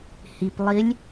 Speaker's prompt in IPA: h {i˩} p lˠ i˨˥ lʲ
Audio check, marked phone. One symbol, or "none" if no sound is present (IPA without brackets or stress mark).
i˩